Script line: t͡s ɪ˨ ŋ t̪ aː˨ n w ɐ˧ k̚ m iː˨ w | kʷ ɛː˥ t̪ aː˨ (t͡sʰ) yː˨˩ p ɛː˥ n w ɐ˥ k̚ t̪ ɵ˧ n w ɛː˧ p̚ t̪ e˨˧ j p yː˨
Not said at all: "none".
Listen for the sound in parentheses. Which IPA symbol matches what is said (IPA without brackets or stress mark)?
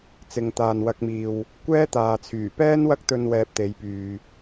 t͡sʰ